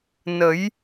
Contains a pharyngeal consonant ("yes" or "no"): no